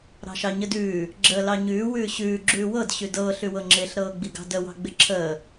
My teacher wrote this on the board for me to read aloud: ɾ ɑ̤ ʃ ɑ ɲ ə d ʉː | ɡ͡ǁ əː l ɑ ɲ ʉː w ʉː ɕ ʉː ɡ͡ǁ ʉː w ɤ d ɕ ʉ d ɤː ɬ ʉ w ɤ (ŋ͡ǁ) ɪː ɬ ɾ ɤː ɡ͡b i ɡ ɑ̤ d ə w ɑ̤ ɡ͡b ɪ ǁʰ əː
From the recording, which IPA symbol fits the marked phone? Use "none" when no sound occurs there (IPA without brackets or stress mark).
ŋ͡ǁ